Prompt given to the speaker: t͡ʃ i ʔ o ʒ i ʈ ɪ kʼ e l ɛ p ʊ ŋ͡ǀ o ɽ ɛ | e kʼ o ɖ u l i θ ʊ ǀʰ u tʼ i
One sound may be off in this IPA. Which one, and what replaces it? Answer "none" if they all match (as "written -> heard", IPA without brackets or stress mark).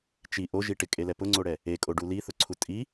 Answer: none